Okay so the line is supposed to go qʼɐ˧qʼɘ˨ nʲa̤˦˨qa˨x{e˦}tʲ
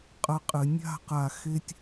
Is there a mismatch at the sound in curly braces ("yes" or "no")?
yes